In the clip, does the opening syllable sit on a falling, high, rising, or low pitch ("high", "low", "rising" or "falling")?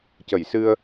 low